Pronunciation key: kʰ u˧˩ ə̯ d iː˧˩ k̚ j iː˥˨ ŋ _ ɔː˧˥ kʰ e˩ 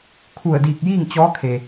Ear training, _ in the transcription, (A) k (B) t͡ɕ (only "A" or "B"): B